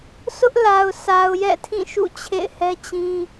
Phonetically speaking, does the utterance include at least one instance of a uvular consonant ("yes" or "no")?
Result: no